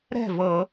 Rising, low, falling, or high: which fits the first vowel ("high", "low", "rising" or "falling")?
falling